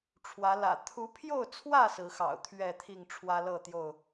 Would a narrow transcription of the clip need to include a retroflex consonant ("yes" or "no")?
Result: yes